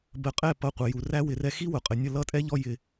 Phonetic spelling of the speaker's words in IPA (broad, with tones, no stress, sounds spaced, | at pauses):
b ə˧ qʼ ɛ˦˨ p ʌ˧ qʷ ə˨ j u˨ r æ˦ w ɪ˨ r ɛ˧ x i˦ w ʊ˨ qʼ ə˨ nʲ ə˦˨ l ʌ˦˨ tʼ ɛ˦ ʎ ɔ˧ j ɪ˨